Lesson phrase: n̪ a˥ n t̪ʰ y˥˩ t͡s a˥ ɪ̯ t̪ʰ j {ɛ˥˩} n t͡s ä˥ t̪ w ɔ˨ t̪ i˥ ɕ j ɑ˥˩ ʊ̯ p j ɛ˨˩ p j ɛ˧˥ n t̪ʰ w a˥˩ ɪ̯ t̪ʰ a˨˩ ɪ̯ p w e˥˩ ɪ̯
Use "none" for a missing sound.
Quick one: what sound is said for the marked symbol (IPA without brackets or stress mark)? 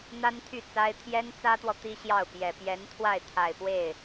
ɛ˥